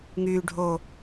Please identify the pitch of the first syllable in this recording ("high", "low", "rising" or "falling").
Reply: low